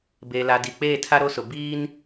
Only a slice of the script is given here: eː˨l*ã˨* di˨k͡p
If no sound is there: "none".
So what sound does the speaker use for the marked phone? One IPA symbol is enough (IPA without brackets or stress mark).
a˨